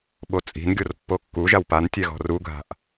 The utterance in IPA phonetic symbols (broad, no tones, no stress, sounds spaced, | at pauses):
ɓ o t͡sʼ i̤ n ɡʲ o r pː o kː u ʒ a w p a n tʲ ɛ ɣ ɔ̤ r u ɡʱ a̤ ʔ